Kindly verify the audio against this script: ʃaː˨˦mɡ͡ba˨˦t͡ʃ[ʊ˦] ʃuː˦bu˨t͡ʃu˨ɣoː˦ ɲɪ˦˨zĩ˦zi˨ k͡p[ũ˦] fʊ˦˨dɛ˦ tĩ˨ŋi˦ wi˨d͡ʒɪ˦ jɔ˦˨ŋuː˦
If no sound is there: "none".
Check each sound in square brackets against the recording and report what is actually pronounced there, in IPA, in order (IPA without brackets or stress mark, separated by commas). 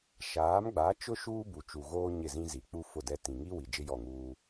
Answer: ʊ˦, u˦